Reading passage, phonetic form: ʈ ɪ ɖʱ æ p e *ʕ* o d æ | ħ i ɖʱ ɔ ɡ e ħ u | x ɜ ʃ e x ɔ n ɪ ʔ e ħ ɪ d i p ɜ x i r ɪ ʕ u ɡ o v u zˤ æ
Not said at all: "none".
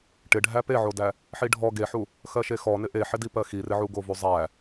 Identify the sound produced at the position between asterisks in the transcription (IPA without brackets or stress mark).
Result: ʕ